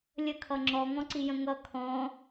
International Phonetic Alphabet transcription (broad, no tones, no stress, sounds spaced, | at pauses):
lʲ ə kʰ ʌ ŋ͡ǁ ɔ ŋ ɔ̃ ǀ i j ə̃ ŋ ʌ kʰ ɔ̃